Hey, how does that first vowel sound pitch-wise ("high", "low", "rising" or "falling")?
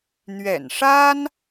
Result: low